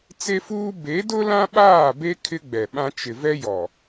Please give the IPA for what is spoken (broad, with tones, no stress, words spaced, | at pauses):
t͡se˦fuː˦ be˨˦dʊ˦ lã˦ɓaː˦˨be˦ kʰɪ˦ɡ͡bɛ˨ɓã˦ t͡ʃɪ˨vɛ˦jɔ˨